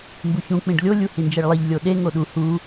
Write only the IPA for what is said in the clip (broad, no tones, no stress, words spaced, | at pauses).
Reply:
mbuçũ k͡pĩɖlʲo lʲuhind͡ʒeɭlˠiʎ lʲoɗe ŋoɗu hu